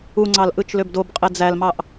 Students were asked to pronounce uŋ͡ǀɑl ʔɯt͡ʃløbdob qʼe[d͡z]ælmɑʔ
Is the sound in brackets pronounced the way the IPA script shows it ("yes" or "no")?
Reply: yes